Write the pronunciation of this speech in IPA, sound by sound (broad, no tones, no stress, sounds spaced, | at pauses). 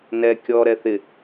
n ɛ kʲ ɔ ɾ ɛ θ ɪ